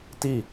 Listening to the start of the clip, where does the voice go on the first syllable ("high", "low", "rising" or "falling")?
falling